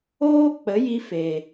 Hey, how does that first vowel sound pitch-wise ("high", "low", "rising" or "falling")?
high